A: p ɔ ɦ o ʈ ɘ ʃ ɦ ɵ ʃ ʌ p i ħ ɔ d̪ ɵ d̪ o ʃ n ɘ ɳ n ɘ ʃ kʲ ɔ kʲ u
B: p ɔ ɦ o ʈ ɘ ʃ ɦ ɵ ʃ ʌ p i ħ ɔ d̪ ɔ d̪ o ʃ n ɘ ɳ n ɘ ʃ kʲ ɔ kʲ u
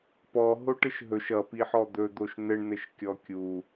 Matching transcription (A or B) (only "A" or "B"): A